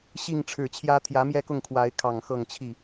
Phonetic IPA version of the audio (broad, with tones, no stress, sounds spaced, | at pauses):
ɕ i˥˨ ŋ ʈ͡ʂʰ ɻ̩˨˩ t͡ɕʰ j ä˦ t̪ʰ j ä˨˦ m j ɛ˥˨ k ʊ˥˨ ŋ kʰ w a˨˦ ɪ̯ kʰ ɑ˨˩ ŋ x ɤ˥˨ ŋ t͡ɕʰ i˥˨